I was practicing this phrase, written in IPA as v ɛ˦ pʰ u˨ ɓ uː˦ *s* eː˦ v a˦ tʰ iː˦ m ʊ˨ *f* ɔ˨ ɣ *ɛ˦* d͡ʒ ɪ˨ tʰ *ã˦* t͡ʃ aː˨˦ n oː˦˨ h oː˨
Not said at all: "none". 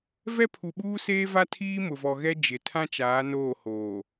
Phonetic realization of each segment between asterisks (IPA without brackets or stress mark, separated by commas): s, v, ɛ˦, ã˦